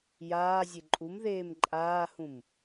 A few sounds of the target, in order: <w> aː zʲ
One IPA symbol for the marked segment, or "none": j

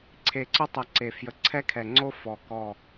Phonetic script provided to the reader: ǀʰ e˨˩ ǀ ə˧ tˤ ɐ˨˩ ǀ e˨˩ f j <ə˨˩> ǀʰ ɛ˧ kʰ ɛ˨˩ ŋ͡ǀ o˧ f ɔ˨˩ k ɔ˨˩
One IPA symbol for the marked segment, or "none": ə˨˩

